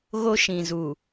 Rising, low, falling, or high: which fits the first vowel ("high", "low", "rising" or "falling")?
high